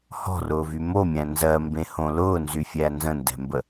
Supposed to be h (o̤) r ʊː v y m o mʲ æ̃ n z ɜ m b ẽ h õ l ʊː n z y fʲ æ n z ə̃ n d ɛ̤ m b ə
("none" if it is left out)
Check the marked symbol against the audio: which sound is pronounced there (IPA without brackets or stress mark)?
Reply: ɔ̤